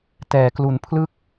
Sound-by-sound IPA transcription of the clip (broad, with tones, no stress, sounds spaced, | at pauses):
t ɛː˩˦ k l u˩˦ n pʰ l ɯ˥˩ k̚